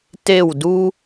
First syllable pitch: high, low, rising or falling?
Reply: falling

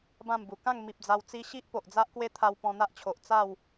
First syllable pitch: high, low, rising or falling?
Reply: falling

